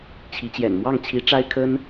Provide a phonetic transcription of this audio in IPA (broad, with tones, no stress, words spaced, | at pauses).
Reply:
t͡ɕʰi˧˥t͡ɕjɛ̰˨˩n mwɑ˥˩ŋt͡ɕʰi˧˥ʈ͡ʂa˥ɪ̯kʰə˥n